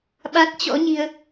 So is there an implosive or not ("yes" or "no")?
yes